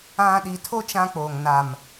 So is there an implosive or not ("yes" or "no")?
yes